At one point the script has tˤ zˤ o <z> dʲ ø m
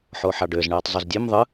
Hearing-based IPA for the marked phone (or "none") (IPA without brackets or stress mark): z